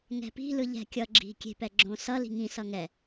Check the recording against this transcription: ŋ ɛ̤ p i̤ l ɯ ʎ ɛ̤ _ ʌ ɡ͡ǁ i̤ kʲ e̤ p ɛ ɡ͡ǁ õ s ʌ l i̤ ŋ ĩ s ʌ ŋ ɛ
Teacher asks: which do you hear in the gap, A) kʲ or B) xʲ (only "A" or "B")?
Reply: A